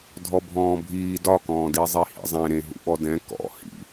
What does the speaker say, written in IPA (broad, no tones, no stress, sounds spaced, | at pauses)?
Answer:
dʱ ɔ bʱ ɔ̃ː bʱ iː d ɒ k ɔ̃ː d i zˤ i h ḭ zˤ ẽ ɾ ẽ ɦ ṵ ɓ ɔ d ɛ̃ k ɔ̰ h ḭ